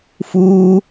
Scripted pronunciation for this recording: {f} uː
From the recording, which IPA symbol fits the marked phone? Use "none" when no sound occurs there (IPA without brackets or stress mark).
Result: f